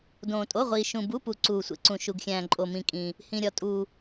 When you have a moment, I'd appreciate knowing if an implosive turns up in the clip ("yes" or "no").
no